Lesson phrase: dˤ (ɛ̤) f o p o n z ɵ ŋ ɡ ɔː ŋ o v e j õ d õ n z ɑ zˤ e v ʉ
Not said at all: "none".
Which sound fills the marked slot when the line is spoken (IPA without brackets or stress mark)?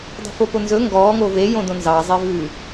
ɛ̤